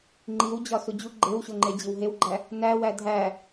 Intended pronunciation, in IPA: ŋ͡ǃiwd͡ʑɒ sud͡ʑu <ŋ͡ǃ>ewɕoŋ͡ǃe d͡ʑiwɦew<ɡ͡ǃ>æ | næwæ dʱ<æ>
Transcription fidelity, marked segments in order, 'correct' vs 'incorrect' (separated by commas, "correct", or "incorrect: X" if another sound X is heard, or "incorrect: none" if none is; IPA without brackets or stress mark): incorrect: ɡ͡ǃ, correct, correct